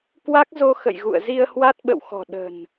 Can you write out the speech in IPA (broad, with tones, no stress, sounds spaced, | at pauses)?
k w a˦˥ k̚ z o˧ x ə̰˧˨ j ɣ ṵ˧˨ ə̯ z i˧ ə̯ h w a˦˥ t̚ ɓ ə̰˧˨ w x ɔ̤˨˩ ɗ ə̤˨˩ n